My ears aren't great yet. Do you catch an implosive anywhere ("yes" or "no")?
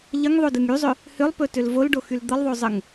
no